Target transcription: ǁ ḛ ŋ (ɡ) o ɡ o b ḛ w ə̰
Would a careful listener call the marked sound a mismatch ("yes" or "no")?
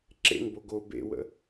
yes